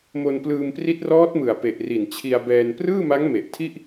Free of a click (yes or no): yes